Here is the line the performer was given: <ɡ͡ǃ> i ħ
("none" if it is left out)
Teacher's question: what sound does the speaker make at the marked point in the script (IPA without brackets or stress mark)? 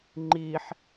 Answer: ŋ͡ǃ